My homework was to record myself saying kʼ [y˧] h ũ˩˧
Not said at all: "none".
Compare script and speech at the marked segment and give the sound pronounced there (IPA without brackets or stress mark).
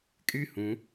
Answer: y˥